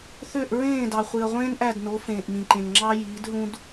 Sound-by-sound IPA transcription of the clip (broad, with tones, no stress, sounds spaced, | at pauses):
θ ø˥˨ ʔ ɹ ẽː˥˨ d ɑ˨ χʷ i˨ ɐ̯ ʁʷ ẽː˥ n ʔ æ˥˨ d n o˨˥ f ẽː˨ ʔ m ĩ˨ ǃ ẽ˨ ŋ ŋ͡ǁ ɑ˥ j iː˨˥ d ɦ ũ˥ d